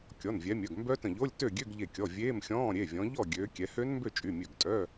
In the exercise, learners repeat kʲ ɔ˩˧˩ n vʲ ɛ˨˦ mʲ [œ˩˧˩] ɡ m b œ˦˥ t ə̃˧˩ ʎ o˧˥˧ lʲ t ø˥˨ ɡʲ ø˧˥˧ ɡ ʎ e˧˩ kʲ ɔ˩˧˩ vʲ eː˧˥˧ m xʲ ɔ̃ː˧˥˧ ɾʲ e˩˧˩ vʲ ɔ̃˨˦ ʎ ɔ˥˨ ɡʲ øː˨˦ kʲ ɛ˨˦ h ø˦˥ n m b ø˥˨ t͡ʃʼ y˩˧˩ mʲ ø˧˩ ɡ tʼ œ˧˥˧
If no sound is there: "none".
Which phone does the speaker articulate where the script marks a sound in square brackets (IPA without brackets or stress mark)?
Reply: œ˩˧˩